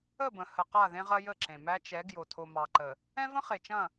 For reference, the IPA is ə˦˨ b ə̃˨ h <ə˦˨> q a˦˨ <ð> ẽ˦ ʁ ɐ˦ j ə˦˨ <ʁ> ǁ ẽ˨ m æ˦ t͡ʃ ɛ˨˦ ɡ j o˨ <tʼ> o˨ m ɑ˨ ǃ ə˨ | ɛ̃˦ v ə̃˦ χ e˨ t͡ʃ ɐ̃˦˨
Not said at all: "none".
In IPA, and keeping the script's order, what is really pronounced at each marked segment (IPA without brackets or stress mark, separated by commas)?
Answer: ə˨, ð, none, tʰ